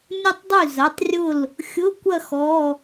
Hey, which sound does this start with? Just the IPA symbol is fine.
nʲ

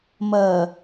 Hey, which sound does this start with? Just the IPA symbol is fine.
m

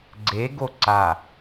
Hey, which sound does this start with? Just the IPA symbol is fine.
ɡ͡ǀ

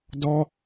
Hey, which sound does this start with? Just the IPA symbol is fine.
d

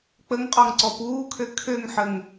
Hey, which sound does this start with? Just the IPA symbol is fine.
k͡p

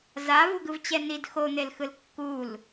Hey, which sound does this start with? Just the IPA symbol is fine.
z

